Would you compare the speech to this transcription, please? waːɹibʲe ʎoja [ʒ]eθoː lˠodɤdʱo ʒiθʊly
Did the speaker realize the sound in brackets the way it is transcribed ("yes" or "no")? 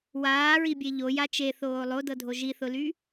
no